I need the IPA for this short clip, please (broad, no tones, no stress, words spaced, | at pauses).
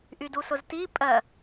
ʔydusʊzti pʼɜ